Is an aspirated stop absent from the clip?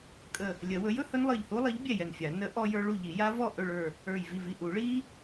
yes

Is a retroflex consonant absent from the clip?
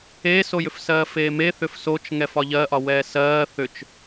yes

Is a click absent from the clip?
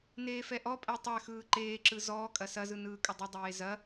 no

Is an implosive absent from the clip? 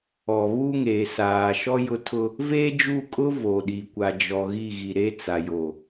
no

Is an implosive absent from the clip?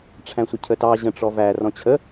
yes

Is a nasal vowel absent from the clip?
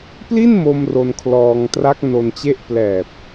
yes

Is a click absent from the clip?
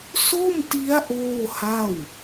yes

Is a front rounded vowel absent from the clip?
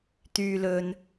no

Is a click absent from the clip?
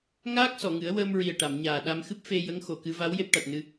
yes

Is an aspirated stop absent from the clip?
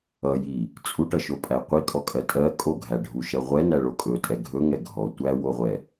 yes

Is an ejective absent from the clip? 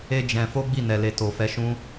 yes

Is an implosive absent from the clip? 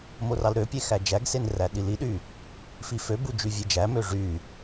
no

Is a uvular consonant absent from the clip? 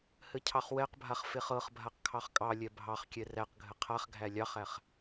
no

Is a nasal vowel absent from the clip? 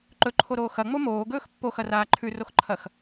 yes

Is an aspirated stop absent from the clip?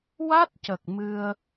yes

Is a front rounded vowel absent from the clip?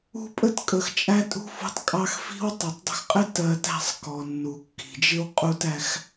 yes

